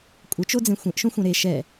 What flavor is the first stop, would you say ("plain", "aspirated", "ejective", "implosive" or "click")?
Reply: ejective